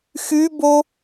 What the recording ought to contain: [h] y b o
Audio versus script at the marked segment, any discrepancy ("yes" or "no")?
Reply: yes